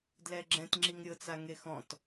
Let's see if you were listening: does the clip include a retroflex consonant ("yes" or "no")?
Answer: no